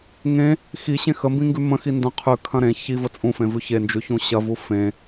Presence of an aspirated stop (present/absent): present